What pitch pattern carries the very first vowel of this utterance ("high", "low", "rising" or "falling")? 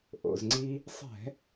low